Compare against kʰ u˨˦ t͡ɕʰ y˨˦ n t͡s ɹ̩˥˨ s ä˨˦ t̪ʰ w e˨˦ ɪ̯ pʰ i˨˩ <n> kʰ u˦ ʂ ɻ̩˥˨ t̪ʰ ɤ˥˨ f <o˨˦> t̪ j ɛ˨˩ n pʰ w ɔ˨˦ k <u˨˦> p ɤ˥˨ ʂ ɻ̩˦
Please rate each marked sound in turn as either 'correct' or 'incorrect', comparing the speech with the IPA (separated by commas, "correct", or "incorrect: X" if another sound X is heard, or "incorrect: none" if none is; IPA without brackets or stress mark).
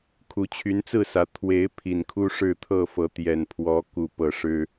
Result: correct, incorrect: ɤ˨˦, incorrect: u˨˩